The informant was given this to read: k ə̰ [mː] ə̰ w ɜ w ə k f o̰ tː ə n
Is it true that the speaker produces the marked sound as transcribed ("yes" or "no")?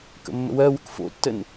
yes